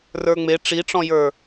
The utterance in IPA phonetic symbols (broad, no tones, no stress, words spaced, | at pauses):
rə˞ŋ͡me ʈ͡ʂiʈ͡ʂɔ̃jə˞